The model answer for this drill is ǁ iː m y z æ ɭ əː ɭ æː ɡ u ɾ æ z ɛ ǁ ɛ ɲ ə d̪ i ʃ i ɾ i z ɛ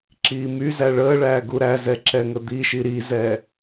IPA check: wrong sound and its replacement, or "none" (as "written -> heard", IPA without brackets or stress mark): ɲ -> ŋ